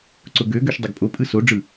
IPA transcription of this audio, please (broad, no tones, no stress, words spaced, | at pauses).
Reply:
ǀʊɡøɡøʃ dˤɪɡpʼopʼɯ soɖ͡ʐɯ